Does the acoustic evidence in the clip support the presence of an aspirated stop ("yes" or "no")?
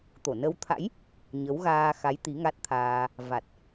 yes